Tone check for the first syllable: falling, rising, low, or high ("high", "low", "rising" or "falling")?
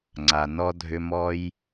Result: low